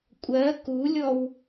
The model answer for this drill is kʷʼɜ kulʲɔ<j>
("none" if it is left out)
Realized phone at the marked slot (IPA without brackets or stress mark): w